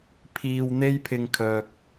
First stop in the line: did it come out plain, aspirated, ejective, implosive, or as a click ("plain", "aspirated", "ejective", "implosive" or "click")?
aspirated